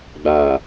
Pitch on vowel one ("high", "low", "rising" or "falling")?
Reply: low